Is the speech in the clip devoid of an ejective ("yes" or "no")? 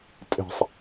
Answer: no